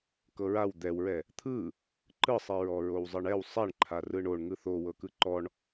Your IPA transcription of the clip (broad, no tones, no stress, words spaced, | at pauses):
kɤɹaw d̪ɛwɹɛ | t̪ʰɯ | ǃɯsˤi ɹɔɹowzˤɯɳɛw sˤɛɳǃʰa rɯɳoɳ ŋɯθowɤ kɯǃɔɳ